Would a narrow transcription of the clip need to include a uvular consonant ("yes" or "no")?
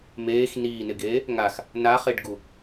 yes